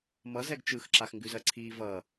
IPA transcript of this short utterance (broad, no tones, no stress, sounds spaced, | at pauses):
m ʌ z ɛ ɡ t͡ʃ ɯ x ǁ a x ŋ ɡ ʉ z ɜ ǀʰ i v ʌ